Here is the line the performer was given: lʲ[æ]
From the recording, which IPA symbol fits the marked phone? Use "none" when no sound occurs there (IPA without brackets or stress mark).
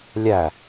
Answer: æ